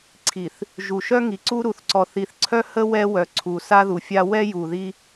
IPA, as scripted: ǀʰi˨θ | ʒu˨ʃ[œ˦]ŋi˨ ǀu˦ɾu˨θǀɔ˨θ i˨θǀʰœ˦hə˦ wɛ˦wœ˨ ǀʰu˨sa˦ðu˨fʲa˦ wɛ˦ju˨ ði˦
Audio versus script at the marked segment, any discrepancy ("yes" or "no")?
no